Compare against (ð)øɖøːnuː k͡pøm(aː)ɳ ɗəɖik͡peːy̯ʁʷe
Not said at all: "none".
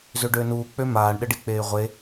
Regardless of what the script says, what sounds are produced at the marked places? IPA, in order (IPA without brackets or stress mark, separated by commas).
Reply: z, aː